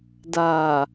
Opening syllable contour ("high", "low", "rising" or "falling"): low